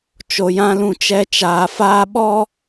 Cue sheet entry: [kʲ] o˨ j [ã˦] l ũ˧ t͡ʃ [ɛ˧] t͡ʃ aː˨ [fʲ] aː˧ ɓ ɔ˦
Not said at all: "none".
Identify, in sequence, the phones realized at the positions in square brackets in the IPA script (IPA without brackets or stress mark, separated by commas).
t͡ʃ, ã˦, ɛ˧, f